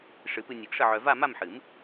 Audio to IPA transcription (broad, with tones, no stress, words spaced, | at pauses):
ʂɨ˨˩˦pɨ˧ nʲɨ˨˩˦ɡʂə˥˧ʕœ˧ va˥˧ma˥˧mħɨ˨˩˦m